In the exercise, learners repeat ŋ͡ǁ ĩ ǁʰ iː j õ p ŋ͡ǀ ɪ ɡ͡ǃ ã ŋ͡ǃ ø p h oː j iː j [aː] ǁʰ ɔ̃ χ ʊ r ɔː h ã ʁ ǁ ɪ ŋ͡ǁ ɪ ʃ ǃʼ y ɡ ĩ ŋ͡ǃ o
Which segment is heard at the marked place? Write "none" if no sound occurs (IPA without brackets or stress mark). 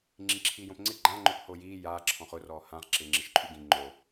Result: aː